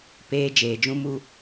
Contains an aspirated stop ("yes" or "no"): no